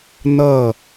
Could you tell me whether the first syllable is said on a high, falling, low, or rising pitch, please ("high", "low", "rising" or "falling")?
falling